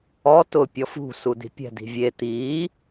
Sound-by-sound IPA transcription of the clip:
ɔ t ʊ pʲ ɔ f ṳ s u d i̤ pʲ ɛ̤ d i̤ vʲ e t̪ iː

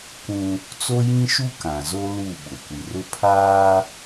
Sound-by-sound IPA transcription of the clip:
k ũ˦ | t͡s o˦ j ĩ˦ ʃ u˦ k ã˨ z o˦ l u˦˨ ɓ ʊ˨ kʷ i˨ r ʊ˦ pʰ aː˦

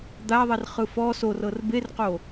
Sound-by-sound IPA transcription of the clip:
d̪ a ðˤ e r χ ɯ f ɔ s o r ɤ r b e r q o

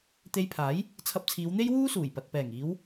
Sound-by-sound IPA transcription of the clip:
t̪ e˧ j pʰ aː˨˥ j | t͡sʰ ɐ˧ p̚ t͡sʰ iː˨˧ w n̪ e˥ j w uː˥ s uː˨˩ j p ɐ˨ t̚ p ɛː˨˩ ŋ iː˨˧ w

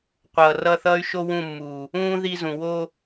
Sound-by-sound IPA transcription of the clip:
qʷ ʌː˨ r ʌ˦˨ θ ʌː˦ y̯ ʃ o˦ w ũ˦˨ mː uː˨ | ũː˦ ð i˦ z ũ˨ w o˦

